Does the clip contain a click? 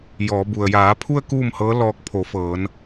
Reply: no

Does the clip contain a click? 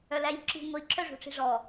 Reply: yes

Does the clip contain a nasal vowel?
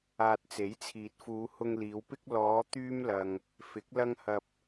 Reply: no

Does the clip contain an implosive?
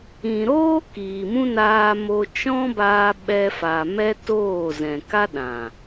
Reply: yes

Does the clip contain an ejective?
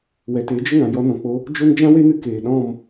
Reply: no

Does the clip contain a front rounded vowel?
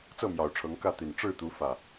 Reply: no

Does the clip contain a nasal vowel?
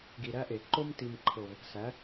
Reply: no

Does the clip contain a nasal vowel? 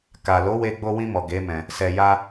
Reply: yes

